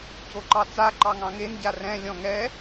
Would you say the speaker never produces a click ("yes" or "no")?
no